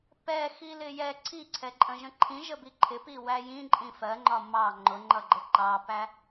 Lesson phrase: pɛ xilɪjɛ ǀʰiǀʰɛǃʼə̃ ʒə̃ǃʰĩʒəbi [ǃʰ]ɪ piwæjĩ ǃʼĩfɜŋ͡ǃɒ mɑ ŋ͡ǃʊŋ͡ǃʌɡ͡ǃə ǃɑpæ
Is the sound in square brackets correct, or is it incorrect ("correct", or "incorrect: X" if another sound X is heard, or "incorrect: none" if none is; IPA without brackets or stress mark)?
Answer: correct